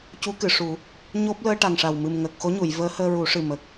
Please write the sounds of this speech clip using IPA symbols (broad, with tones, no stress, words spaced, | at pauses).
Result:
cu˧˥kɨ˨˩˨ʂu˨˩˦ | ɲo˦˥p̚ ləː˧ʈa˨˩ŋʂa˨˩w mɨ˨˩mŋəː˨˩k̚xo˧˥ɲu˨˩˨j vəː˧˥həː˧ɹu˨˩˦ʂɨ˨˩ mə˨˩k̚